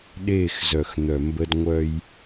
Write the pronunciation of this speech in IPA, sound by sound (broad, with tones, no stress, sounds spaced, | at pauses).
ɗ eː˦˨ x z œ˨ x n̪ œ˨ m b ə˦ d ŋʷ œ˦ j